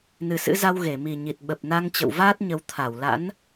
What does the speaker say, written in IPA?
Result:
nɨ˨˩sɨ̰˧˥za˧w ɣe˧˩mi˨˩ ɲi˨˩t̚ɓə˨˩p̚na˧ŋt͡ɕə̰˧˨w vaː˦˥t̚ɲə˨˦w t̪ʰa˧˩w la̰˧˥n

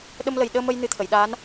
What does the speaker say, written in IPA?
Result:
ɗə˧mlə˨˩jɗəː˧mə˧j nɨ˧t̪ʰə˨˩˨jɗaː˧˥n

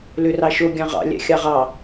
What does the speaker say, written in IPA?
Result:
lørɑʃo ɡʲɑ̃ʁɑ̰ lʲæ̰xʲɑʁɑ

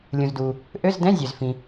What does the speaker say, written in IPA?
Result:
lʲũ˩zduː˩ | ʔø˧˥˧zdɛ̃˧˥˧ zʲø˩z fĩ˩

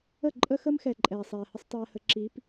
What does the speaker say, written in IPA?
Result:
ə˦˨ǃʼə˦xə˦mxɛ˨ ǃʼɛː˨sˤɛː˨hə˦sˤ tˤɛː˦hə˦ǁiː˨˦p

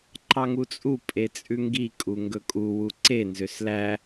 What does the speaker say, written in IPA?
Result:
ǃɑŋut͡sʼu pʼet͡sʼʉŋɡi kʼuŋɡɵkʼu wuǀe nzøslæ

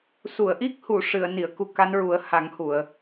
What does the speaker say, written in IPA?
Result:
su˨˩˨ə̯ʔi˦˥k̚hu˨˩˨ ʂɨ˨˩˨ə̯ ni˨˩˨ə̯ku˧ ka˧˥nɹu˨˩˦ə̯ha˨˩˦ŋhu˨˩˨ə̯

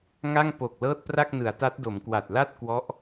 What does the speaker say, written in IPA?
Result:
ŋa˥˩ŋpo˨˩k̚ lɤː˥˩t̚pra˥˩k̚nɯ˩˦a̯ta˦˥t̚ do˩˦mkwa˨˩t̚ la˥˩t̚ kwɔ˦˥ʔ

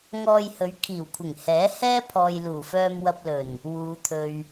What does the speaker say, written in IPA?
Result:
ŋɔː˧jhɵ˨˧ɥ kʰiː˨˩wkʷʰɪ˨˩ŋ hɛː˨˥hɛː˥pʰɔː˨j luː˨˩fœː˧mwɐ˧p̚lɵ˨˩n | wuː˨˧t̪ʰɵ˨ɥ

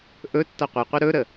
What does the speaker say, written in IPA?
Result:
ʔɵ tːʌqʷeqʷɨ ɾɵɾə

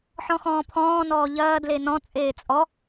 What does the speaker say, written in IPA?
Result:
ħɔ̃xɔ̃ːpʰɔ̃ː nɔːʎɐː dlenɔ̃ t͡sʼeːt͡sʼɔ

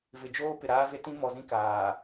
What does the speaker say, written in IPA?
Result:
vɪ˨d͡ʒoː˦ pɪ˨ɾaː˦ve˦ tĩ˦ mɔ˨zĩ˦ kaː˨

